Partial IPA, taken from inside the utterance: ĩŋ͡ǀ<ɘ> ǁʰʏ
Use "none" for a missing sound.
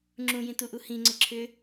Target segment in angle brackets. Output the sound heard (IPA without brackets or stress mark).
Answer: ɘ